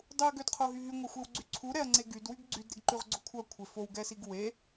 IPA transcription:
dˤ u ɐ̯ ɡ ø d qʰ o ɦ y ɦ y ŋʷ a xʷ e w ɡ͡ǀ y ǀʰ u ɾ ɛ ɐ̯ ŋ͡ǀ e ɡ y d w y ɡ ɡ͡ǀ y d ɾ e ɡ ǃ y ʁ ɡ͡ǀ o kʷʰ œ kʷʰ e f o w ɡ ɛ s i ɡ w e

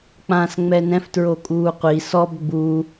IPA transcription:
k͡p ã s ŋ͡m ɛ n ɛ̃ f t ɹ o kʼ uː qʷ i s ɔ b ɡ͡b u

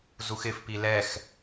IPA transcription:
z u x ɪ f p i l ɛ x

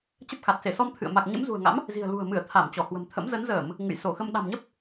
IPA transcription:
t͡ɕ ə˦˥ p̚ x a˨˩ t̚ s e˧˩ s ɔ˧ m t̪ʰ ɨ̰˧˨ ə̯ m a˨˩ k̚ ɲ ə̰˧˥ m z ṳ˨˩ ə̯ ŋ a̰˧˥ m | z i̤˨˩ ə̯ l ṳ˨˩ ə̯ m ɨ˧˩ ə̯ t̪ʰ a˧˩ m t͡ɕ ɔ˧˩ h w ə̤˨˩ m t̪ʰ ə̰˧˥ m z ə˨˦ n z əː˧˩˨ m | ŋ ɨ̰˧˨ j s o˧˩ x ə˧ m ɗ a̤˨˩ m ɲ ə˦˥ p̚

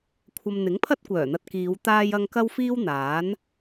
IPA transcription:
kʷʰ ɐ˨ m n̪ ɪ˨˥ ŋ pʰ ɐ˥ t̚ kʷ œː˨˩ n̪ ɐ˧ t̚ k iː˨˧ w t̪ aː˧ j ɐ˧ ŋ k ɐ˥ w f iː˥ w n̪ aː˨˥ n

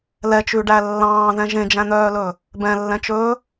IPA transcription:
l ɛ t͡ʃ ʉ ɖ æ lː ɑ̃ː ð ɛ̃ ʒ ẽ d͡ʒ æ̃ n̪ œː l ɵ | b ɛ̃ lː ɛ̃ t͡ʃ ɵː

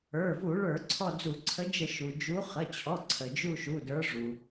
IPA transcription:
ə˞˩˧˩ v u˧˩˧ ɭ ə˞˧˩˧ ǀʰ ɔ˦˨ d͡z u˧˩˧ ǀʰ ə˨˦ d͡ʒ ə˧˩˧ ʃ u˩ d͡ʒ u˨˦ χ ə˩˧˩ t͡ɕʰ ɔ˩˧˩ ǀʰ ə˩ d͡ʒ u˦˨ ʃ u˩˧˩ d ə˞˨˦ ʐ u˩

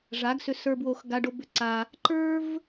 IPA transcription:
ʐ a˨˦ ɡ s ʏ˧ s ə˞˧ b w o˧ x ɡ a˧ ɖ o˧ b ʏ˧ ǀ a˧ | ǃ ə˞˦ v

